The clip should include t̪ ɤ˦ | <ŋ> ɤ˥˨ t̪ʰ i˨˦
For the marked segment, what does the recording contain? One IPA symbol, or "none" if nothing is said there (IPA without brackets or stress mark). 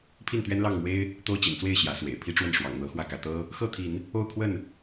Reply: x